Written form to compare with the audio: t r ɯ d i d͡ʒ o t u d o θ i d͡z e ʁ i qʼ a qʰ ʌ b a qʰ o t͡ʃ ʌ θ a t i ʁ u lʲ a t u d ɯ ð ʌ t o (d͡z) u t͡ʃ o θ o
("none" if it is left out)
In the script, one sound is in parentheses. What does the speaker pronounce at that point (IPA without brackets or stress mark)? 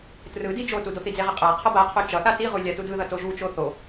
ʒ